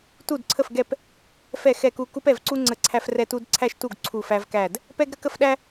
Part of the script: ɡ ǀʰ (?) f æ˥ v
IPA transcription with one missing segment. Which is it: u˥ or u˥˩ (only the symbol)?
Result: u˥˩